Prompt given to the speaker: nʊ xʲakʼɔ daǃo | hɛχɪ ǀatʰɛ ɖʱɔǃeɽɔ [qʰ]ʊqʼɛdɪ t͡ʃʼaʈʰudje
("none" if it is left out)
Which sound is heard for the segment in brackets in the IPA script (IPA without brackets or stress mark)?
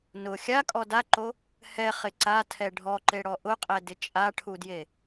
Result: ʔ